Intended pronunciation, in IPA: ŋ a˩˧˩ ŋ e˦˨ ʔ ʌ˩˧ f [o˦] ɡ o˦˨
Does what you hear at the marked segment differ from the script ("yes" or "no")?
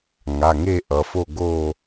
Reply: yes